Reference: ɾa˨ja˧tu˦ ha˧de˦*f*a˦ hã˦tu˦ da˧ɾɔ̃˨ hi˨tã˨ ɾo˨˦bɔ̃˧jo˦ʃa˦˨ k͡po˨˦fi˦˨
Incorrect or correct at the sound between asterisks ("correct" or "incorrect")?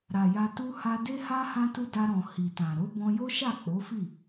incorrect